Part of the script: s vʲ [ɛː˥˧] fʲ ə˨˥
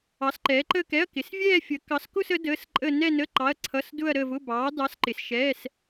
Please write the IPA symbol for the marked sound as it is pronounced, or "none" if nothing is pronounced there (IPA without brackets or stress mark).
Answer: ɛː˥˧